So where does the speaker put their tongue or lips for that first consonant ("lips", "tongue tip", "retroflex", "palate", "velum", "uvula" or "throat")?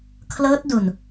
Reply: velum